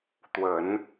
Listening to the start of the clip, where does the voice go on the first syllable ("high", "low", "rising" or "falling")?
low